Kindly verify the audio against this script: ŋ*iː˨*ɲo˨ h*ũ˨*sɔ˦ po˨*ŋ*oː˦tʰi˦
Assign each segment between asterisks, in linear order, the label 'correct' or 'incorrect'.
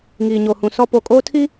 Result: correct, correct, incorrect

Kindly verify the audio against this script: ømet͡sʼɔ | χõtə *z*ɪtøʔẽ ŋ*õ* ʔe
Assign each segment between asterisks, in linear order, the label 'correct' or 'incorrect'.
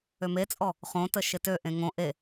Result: incorrect, correct

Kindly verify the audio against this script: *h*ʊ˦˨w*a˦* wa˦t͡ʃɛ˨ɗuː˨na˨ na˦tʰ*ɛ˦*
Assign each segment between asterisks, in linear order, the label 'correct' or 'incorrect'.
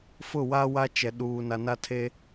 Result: incorrect, correct, incorrect

